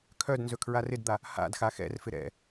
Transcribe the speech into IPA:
kʰ œ d n z ɵ kʰ ɹ a r ɪ d d̪ a | h a̰ d x a x ɛ̰ r f ɪ ɾ ɛ̰

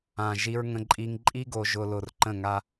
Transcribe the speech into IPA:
ã˨ ʒ i˦ ɹ ŋ ə̃˦ ǃʼ i˦ ŋ ǃʼ i˦ ɡ o˨ ʒ ʊ˨ l ʊ˨ r ǃ ə̃˦˨ ŋ a˦

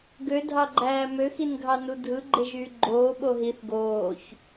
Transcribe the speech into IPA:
ɡ ø dʱ ɑ ɡ͡ǃ æː m ø x i n ɡʱ ɑ n u dʱ ɯ ɡ͡ǃ e ʒ yː ɡ͡ǃ oː ɓ o ɦ i θ ɡ oː ç

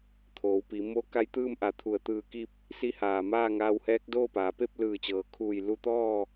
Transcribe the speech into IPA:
t̪ʰ oː˩˧ w p i˩˧ m o˧ k a˧˥ j t̪ ɯː˥˨ m ʔ a˧˩ t̪ʰ u˧˩ ə̯ t̪ ɯː˧˩ k i˧ p̚ | s i˧˥ h aː˩ m aː˥˨ ŋ aː˧ w h ɛː˧˥ k̚ d oː˥˨ p aː˩˧ p e˥˨ p̚ l ɯː˧˩ t͡ɕ ɤː˩ kʰ uː˧˩ j l u˧ t̪ ɔː˥˨

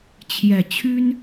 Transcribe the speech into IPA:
t͡ɕʰ j ɛ˨˩ t͡ɕʰ y˦ n

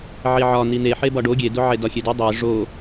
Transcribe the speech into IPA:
ʕ i ʕ ɒ n̪ i n̪ e ħ e b ɒ ɖ o ɡʲ e d o ʕ e d ɒ xʲ e d i dˤ e ʐ o

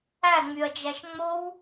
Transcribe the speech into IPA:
æ ŋ͡m y ɐ̯ d͡ʒ æ ʃ ŋ͡m o w

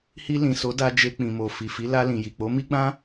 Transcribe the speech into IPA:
h i˧ l ĩ˨ s o˨˦ d a˧ d͡ʒ e˧ k͡p ĩ˨ m o˨ f i˨ f i˨˦ l a˧ l ĩ˨ j i˨ k͡p o˨˦ m i˦ ɡ͡b ã˦

